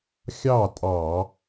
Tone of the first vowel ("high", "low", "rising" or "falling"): falling